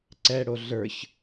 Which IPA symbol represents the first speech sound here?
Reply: ǀ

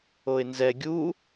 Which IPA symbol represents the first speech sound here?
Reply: o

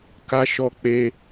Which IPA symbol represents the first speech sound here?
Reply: k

